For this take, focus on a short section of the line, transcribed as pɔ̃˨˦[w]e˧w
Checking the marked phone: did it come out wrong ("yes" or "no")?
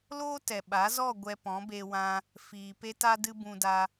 yes